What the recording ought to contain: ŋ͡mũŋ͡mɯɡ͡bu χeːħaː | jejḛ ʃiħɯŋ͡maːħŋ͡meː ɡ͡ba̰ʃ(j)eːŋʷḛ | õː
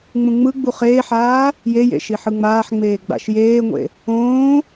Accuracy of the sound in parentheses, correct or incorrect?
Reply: correct